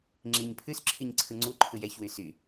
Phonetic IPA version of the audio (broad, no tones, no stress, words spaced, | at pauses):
ŋ͡ǁiɲ pʰʉsǁʰiɲǀʰɯ ŋ͡ǀuǃʰɯj ɛçwy sy